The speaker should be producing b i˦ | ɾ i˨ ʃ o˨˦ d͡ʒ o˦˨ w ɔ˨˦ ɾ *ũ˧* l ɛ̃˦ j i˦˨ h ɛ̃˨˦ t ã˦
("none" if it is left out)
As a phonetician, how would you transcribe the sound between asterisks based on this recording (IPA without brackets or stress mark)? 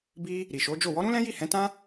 ũ˦